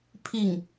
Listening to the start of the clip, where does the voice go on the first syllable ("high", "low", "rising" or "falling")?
falling